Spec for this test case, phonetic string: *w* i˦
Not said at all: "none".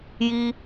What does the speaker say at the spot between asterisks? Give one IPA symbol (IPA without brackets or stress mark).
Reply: j